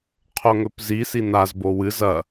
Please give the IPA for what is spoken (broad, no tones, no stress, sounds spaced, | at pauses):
qʰ o ŋ ɵ p z i s i n a z b o w ɨ z ɐ